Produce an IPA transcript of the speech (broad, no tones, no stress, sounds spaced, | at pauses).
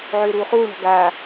ʕ øː ɾ uː χ uː ɳ ɔ̤ ɡ aː